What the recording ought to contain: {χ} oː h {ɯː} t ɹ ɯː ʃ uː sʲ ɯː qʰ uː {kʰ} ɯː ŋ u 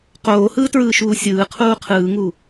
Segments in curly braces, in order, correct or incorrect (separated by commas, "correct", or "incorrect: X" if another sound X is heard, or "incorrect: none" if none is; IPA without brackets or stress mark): incorrect: q, correct, incorrect: qʰ